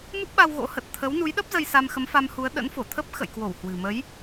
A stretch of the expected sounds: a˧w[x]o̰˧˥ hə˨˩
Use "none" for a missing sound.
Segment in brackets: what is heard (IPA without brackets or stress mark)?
ɣ